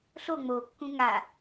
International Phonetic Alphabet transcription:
ɬ o ŋ͡m o kː ũ ŋ a

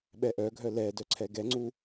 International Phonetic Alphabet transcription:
ɓ ɛ ʔ œ ɡʱ œ l ɛ d œ ǀʰ ɛ ɡ ɛ ŋ͡ǀ u

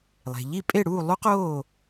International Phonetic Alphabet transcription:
lˠ e̤˩ ʎ i˥˩ pʼ e˥˩ ɽ uː˥˩ lˠ u˥ q oː˥˩

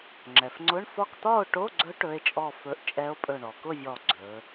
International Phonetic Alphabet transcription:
ŋ͡ǁ ɛ˩ f ŋ͡ǀ ʊ˧˥˧ ɳ f ɒ˥˨ k t̪ ɒ˥˨ o̯ ʈ o˧˥˧ ɡ͡ǀ ɵ˧˥ ʈ ɵ˧˥˧ e̯ t͡ʃʼ ɔ˥˨ f ɵ˧˥˧ ʔ t͡ʃʼ ɛ˧˥ o̯ pʼ ɵ˧˩ ɳ ɔ˩ k ʊ˥˨ vʲ ɔ˧˩ ɡ͡ǀ ɵ˩˧

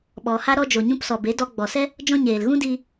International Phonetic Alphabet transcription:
ɓ ɔ˨ h a˦ ɾ ɔ˧ d͡ʒ o˨ ɲ ũ˧ p s ɔ˨ b e˨˦ d ɔ˧ ɡ͡b ɔ˨ s ɛ˦ | d͡ʒ ɔ̃˦ ɲ eː˨ l ɣ ũ˦ d i˧

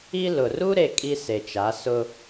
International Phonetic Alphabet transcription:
i˦ l ʊ˨ r u˦ ɾ e˨ kʼ i˦ s e˨ t͡ʃ a˨˦ s ʊ˦

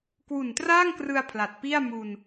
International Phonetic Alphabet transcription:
k w u˨˩ n t r aː˥˩ ŋ k r ɯ˧ a̯ pʰ l a˨˩ t̚ p i˥˩ a̯ m u˧ n

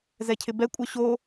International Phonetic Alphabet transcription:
z ɛ cʰ ɪ b ɛ kʷʼ œ ɕ o

